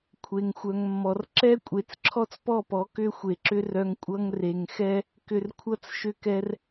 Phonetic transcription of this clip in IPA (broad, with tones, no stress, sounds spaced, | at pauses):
kʷʰ e˨ ŋ xʷ œ˨ ŋ mː ɔ˨ r ǁ ɛ˦ kʷʼ e˨ t͡s ǁʰ ɔ˦ t͡s p ɔ˦˨ p ɔ˨˦ k ʏ˦ xʷ e˨ ǁ ʏ˦ r œ˧ ŋ kʷʼ ʌ˧ ŋ r e˨ ŋ x ɛ˦ | k ʏ˨ r kʷʰ ʌ˧ t͡s ʃ ʏ˧ k ɛ˧ r